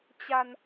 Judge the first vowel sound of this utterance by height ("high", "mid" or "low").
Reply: low